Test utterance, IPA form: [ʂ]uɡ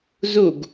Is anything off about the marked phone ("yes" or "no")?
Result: yes